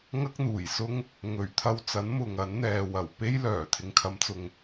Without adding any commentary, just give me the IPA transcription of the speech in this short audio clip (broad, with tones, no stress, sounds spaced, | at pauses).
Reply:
ŋ ɐ˥ k̚ n̪ uː˨˩ j s ʊ˥ ŋ | ŋ ɵ˨˩ ɥ t̪ʰ ɐ˧ w t͡s ɐ˨˥ n m ʊ˨ ŋ ɐ˨˥ n n̪ ɛː˨ w ɐ˨˩ w p e˥ j l œː˨˩ t̪ʰ ɪ˨ ŋ kʰ ɐ˨˧ m t͡s ʊ˨ ŋ